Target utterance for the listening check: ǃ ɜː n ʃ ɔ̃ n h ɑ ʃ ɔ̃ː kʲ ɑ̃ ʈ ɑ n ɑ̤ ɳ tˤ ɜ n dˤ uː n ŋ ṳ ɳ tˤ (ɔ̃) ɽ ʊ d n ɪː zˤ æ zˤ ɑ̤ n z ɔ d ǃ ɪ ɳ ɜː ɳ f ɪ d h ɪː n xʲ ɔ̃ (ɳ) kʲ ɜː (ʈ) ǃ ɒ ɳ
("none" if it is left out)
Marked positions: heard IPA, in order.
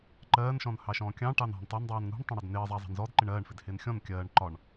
ə̃, n, ɳ

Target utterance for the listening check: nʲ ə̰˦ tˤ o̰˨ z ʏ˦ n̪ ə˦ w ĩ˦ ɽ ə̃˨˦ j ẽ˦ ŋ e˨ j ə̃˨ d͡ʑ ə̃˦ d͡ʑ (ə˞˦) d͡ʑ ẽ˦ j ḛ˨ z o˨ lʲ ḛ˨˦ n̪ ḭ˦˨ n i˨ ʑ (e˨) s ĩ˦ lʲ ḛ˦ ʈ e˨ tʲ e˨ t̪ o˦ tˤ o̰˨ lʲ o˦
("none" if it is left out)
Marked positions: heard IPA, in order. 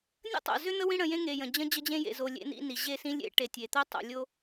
ə˦, e˦˨

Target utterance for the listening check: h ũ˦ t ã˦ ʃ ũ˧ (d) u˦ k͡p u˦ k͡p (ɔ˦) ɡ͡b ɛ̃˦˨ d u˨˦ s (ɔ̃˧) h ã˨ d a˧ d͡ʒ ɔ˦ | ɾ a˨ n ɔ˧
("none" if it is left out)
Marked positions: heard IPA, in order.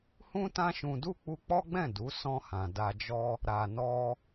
d, ɔ˦, ɔ̃˧

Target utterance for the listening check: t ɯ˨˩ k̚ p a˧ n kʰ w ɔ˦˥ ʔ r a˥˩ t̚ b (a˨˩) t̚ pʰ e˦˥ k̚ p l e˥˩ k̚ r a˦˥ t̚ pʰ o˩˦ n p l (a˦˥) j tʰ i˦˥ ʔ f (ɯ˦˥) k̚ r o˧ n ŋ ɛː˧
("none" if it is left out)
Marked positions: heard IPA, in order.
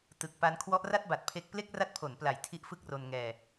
a˨˩, a˨˩, ɯ˦˥

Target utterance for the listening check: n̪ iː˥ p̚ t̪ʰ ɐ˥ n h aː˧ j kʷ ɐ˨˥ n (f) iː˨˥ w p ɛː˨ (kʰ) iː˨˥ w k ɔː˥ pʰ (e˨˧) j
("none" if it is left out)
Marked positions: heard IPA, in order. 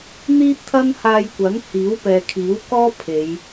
h, kʰ, e˨˧

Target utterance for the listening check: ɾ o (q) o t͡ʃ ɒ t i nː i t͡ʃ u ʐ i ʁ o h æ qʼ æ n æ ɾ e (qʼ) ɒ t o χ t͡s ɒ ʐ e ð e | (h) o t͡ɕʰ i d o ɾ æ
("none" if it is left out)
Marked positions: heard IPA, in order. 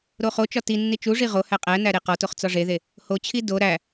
χ, q, h

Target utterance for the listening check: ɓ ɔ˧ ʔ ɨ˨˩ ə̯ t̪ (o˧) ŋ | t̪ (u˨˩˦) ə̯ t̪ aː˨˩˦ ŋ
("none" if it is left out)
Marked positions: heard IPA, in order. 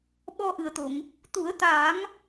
o˨˩˨, u˨˩˦

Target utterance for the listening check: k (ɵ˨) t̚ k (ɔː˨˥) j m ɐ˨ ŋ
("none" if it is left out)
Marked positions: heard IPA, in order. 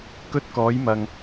ɵ˥, ɔː˨˥

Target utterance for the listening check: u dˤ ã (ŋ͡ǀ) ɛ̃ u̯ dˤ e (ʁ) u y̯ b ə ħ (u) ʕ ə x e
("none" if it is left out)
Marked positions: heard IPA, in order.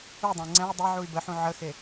ŋ͡ǀ, ʕ, ũ

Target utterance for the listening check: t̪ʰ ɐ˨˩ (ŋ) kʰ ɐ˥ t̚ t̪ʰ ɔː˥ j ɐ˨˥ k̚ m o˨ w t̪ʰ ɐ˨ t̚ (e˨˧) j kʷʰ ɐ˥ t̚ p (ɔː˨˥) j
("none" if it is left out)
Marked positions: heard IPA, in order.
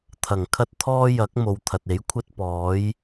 ŋ, e˨˥, ɔː˨˥

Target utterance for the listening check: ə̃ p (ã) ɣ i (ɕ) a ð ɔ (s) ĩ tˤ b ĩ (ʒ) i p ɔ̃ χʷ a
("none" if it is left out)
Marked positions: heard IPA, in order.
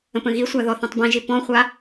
ə̃, sʷ, θ, ʒ

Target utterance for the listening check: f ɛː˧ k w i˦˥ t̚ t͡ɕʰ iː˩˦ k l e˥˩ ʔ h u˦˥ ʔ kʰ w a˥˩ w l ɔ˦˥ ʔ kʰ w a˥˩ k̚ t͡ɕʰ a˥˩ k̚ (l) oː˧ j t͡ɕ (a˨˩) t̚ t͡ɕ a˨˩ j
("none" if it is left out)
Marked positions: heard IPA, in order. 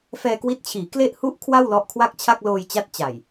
l, a˦˥

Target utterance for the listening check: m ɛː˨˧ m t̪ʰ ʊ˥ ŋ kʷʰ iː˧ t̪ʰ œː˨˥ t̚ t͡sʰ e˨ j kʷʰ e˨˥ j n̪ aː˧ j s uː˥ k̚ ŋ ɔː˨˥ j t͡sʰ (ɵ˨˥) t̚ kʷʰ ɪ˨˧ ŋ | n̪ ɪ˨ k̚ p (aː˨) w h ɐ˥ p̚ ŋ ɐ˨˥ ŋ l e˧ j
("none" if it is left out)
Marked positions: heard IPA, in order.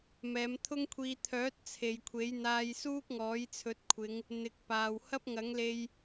ɵ˨˥, aː˨

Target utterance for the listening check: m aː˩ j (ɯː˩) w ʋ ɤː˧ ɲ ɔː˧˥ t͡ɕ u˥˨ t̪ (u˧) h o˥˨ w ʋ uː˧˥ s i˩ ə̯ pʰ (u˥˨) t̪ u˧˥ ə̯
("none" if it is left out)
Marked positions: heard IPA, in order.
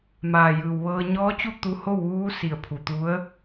ɯː˩, u˧, u˩

